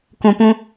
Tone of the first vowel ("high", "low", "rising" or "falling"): low